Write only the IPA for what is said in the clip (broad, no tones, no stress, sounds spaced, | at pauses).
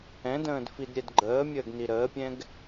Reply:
ɛ̃ d ə̃ː d f i d ɾʲ ɛ d ɡ͡ǃ əː mʲ əː ɡ n i ɾ əː pʲ ɛ̃ ɡ